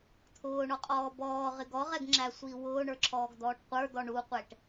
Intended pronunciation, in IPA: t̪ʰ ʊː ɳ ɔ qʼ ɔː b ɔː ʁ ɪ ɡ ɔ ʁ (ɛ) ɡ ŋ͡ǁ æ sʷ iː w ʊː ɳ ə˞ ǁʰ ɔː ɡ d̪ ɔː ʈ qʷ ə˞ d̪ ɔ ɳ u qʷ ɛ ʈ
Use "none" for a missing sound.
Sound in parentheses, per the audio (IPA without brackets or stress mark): ɛ